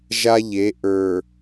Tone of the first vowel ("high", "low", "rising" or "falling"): high